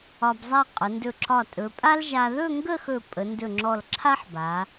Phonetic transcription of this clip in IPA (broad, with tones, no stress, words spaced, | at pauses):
ɒ˧bzˤa˥˧ qʼə˩˧ndɵ˧˩ǁɒ˧˩ tʼɵ˩˧ pʼa˥lʒa˧ ðɵ˥˧ŋɡə˥˧xɵ˧˩ pʼə˩˧ndɵ˧˩ŋ͡ǁɔ˧˩l ǁʰa˥ħba˩˧